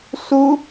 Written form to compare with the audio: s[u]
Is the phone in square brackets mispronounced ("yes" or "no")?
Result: no